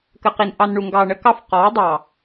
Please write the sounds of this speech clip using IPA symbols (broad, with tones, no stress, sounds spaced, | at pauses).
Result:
k ə˨ q i˨ n ʔ ɑ˨ n ɳ u˨ ŋ ɡ ɑː˨ ɳ ə˦ k ɑ˦ f q ɔː˨˦ dˤ ɑː˨